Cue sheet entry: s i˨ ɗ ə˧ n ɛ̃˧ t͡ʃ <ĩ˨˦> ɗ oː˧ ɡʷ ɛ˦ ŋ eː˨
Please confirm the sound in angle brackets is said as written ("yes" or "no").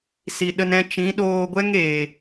yes